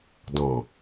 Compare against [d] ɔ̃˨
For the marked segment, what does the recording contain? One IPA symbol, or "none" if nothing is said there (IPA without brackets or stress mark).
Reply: d